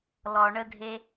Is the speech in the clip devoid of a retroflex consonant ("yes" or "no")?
no